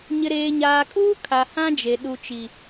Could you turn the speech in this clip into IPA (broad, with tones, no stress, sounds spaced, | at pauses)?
ɲ ɪ˨ ɾ eː˨ ɲ aː˨ kʼ uː˦ kʰ a˨ h ã˦ d͡ʒ e˨ ɗ u˨ t͡ʃ i˨